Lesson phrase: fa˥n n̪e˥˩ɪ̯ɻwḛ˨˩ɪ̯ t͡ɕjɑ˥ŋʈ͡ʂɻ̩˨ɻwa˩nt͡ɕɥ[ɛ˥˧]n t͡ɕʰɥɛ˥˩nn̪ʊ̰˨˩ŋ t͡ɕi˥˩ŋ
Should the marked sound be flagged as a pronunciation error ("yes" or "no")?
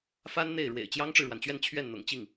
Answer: no